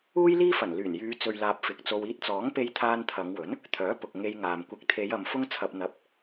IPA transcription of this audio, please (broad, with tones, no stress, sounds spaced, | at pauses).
uː˥ j l iː˥ f ɐ˨˩ n l yː˨˩ n j yː˨˧ t͡s ɵ˨ ɥ l aː˨ p̚ f ɪ˨ k̚ t͡s o˧ w iː˧ t̚ t͡s ɔː˨˥ ŋ p e˧ j t̪ʰ aː˧ n t̪ʰ ɐ˨˧ ŋ w ɵ˨˥ n | t̪ʰ œː˨˥ p ʊ˨ k̚ ŋ e˧ j ŋ aː˨ m kʷ ɪ˧ k̚ t̪ʰ e˨˧ j ɐ˨ m f ʊ˧ ŋ t͡sʰ ɐ˨ p̚ n̪ ɐ˨˥ p̚